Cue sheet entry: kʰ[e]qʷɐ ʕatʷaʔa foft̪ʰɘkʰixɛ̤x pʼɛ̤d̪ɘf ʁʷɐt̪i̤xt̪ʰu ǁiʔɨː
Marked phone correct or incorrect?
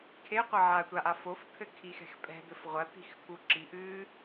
correct